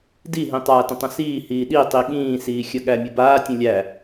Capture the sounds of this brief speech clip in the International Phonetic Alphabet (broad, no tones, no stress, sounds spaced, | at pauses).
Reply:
d i ɦ ĩ tˤ aː t ə̃ tˤ ə̃ s iː h iː ɗ i tˤ i ɠ ĩː s iː xʲ ə ɠ æ mʲ ə b aː tʲ ə̃ lʲ æ